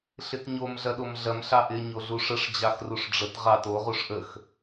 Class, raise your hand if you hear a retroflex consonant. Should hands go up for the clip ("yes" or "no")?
yes